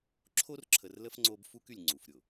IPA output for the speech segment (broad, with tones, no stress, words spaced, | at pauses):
ǁʰo˦rǁʰə˨rlə˦f ŋ͡ǀo˦bfu˦ky˨lʲ ŋ͡ǀu˨fɾʲʊ˨